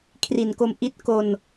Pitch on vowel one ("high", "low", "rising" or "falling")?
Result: low